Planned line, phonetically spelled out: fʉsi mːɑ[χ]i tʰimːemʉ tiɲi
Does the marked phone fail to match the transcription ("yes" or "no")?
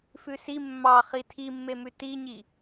no